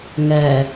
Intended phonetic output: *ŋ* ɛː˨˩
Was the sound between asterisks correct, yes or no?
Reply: yes